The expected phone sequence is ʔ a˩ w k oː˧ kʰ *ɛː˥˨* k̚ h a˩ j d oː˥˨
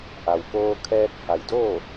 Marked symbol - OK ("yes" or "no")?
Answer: no